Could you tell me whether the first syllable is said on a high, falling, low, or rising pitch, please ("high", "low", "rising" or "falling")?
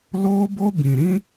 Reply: high